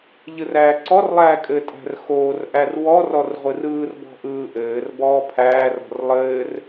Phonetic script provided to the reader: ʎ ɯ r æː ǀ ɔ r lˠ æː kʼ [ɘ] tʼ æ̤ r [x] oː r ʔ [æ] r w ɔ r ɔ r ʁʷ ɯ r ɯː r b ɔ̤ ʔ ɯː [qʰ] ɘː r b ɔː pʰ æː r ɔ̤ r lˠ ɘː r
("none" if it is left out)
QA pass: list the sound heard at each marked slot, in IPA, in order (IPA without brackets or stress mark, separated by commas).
ɘ, x, æ, ʔ